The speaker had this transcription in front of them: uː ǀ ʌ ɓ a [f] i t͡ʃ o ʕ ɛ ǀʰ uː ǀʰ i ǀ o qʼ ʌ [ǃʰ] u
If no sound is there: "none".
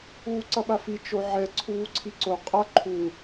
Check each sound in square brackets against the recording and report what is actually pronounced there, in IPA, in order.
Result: f, ǃʰ

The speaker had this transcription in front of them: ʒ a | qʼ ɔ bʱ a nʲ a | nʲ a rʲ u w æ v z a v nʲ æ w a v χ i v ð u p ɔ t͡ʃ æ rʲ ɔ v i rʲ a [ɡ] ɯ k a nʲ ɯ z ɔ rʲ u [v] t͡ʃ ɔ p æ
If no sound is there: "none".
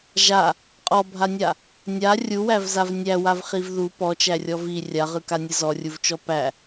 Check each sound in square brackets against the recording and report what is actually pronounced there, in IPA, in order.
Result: ʁ, v

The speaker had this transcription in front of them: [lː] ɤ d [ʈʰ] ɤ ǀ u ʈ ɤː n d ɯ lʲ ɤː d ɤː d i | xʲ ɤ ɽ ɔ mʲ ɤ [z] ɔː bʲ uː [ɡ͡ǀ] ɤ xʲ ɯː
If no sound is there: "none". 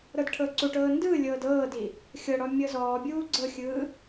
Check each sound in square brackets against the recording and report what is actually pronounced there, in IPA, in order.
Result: ɾ, ʈʰ, z, ɡ͡ǀ

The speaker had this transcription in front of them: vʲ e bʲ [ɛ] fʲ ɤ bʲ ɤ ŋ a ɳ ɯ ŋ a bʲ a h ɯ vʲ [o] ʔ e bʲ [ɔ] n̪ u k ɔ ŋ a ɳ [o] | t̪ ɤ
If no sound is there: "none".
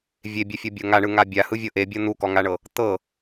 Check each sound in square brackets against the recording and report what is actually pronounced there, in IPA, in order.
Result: e, ɤ, ɤ, ɤ

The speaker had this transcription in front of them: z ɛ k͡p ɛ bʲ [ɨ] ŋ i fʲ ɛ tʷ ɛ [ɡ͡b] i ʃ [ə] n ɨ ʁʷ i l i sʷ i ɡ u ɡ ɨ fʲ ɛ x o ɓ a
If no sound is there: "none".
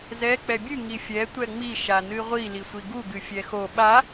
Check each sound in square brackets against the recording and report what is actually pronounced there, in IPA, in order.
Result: ɨ, ŋ͡m, a

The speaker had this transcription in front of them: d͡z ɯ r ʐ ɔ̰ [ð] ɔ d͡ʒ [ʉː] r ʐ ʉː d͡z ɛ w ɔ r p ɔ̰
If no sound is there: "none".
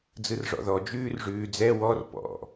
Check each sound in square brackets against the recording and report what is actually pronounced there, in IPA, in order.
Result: ð, ʉː

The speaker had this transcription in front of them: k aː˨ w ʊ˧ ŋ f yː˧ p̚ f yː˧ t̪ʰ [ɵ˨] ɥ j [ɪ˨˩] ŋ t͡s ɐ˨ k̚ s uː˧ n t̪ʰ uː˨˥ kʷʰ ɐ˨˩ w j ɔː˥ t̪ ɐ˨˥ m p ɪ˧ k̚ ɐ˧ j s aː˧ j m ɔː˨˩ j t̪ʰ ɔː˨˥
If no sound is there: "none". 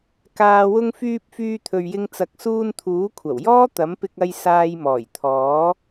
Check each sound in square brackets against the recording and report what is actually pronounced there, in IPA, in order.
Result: ɵ˨, ɪ˧

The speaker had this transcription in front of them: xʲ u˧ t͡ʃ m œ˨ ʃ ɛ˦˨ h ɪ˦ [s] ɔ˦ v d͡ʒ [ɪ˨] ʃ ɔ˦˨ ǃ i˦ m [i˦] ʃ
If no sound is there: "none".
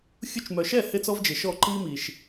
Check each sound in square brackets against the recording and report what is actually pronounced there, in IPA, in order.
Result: t͡s, ɪ˨, i˨

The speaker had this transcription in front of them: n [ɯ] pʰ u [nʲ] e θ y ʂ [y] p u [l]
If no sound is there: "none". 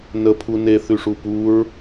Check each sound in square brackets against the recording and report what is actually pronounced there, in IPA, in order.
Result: ə, n, u, ɹ

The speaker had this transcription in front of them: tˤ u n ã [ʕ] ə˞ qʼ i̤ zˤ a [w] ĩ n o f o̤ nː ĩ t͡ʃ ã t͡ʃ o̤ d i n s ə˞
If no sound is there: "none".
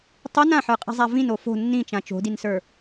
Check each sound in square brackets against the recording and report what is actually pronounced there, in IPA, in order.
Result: ħ, v

